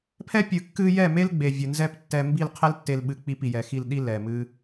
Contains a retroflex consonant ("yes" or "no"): no